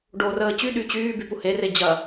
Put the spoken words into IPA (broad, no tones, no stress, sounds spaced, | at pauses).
ɖ o r əː t͡ɕ y ɗ y t͡ɕ yː b y p u h e r e d͡ʑ ɐ